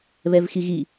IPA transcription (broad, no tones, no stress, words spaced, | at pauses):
βɛvxiɣi